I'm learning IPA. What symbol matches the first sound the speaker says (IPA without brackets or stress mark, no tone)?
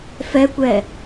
f